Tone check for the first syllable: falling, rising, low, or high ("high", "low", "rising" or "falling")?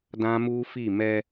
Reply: high